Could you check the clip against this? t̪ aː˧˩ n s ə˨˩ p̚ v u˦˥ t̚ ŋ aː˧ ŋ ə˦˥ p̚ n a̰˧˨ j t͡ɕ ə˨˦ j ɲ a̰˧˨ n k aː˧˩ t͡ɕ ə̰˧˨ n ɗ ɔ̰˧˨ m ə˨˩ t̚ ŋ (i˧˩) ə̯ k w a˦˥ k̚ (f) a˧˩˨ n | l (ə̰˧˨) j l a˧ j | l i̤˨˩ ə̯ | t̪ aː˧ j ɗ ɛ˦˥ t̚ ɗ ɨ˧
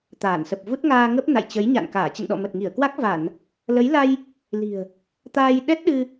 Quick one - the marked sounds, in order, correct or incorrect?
correct, incorrect: v, incorrect: ə˨˦

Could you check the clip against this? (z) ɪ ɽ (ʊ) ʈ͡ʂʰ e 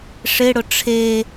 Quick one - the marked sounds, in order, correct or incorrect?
incorrect: ʂ, correct

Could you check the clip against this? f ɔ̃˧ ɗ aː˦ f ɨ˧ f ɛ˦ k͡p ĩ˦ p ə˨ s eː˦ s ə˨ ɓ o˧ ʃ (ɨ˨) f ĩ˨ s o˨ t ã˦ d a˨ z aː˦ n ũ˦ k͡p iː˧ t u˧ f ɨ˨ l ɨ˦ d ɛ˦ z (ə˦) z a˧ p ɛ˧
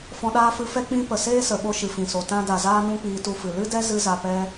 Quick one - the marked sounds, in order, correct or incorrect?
correct, incorrect: ɨ˦

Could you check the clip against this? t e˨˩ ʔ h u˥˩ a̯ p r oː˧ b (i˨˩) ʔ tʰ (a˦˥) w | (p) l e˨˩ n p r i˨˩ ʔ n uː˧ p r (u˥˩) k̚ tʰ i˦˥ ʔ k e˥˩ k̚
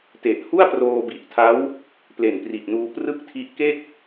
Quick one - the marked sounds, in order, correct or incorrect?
correct, correct, correct, incorrect: ɯ˥˩

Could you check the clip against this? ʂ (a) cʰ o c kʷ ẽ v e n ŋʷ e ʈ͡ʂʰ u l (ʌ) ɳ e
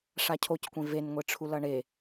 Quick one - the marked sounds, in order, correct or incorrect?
correct, correct

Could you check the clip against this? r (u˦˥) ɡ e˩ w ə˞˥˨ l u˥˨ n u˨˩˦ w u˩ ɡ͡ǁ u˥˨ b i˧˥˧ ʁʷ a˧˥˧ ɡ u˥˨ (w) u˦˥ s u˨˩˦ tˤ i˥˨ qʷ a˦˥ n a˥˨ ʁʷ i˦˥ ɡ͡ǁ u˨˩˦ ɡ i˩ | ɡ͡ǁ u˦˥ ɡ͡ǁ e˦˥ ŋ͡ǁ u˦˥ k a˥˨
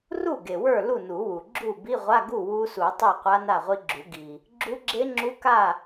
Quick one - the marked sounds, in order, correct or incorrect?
incorrect: u˥˨, correct

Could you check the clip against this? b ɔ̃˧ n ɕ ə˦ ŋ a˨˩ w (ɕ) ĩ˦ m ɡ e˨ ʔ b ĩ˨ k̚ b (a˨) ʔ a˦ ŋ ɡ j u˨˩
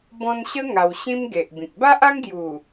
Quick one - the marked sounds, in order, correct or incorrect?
correct, incorrect: a˦

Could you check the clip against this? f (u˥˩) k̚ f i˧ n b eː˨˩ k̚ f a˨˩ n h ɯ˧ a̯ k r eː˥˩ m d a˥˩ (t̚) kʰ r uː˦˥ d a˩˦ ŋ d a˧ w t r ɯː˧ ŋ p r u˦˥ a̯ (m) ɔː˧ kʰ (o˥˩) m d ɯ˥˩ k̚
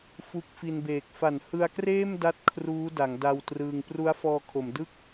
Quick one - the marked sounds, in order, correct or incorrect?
incorrect: u˦˥, correct, incorrect: f, incorrect: o˩˦

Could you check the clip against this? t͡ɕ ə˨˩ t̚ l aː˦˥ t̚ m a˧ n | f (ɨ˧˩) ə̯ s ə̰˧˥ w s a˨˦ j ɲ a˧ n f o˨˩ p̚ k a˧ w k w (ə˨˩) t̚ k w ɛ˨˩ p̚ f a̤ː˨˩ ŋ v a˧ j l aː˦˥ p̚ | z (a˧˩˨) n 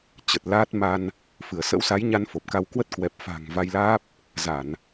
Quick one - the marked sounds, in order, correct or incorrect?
correct, incorrect: ə˦˥, correct

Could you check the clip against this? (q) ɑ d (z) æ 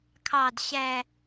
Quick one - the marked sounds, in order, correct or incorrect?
incorrect: kʰ, incorrect: ɕ

